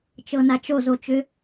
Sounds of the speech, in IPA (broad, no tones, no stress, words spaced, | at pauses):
t͡ʃɤnat͡ʃo zot͡ʃʏ